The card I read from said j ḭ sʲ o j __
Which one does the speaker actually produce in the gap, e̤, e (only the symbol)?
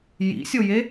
e